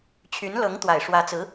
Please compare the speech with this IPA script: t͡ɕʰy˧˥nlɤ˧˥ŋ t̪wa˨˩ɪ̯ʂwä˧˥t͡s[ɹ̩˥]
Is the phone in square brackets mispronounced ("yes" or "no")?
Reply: yes